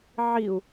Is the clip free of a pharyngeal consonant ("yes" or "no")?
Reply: no